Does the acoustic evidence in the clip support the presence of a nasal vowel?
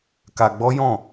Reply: yes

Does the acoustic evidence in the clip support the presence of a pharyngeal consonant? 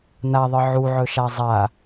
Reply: yes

